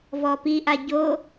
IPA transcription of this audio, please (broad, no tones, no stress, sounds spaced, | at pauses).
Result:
v ɔ p i ʔ a ɟ o